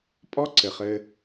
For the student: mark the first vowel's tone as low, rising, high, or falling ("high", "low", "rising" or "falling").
high